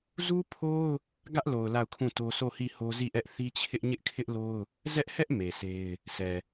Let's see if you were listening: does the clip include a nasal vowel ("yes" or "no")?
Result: yes